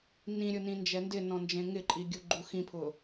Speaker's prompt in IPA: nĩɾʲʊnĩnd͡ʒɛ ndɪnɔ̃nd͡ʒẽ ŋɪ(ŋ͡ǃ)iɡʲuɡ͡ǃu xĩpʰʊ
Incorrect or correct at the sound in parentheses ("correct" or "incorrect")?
incorrect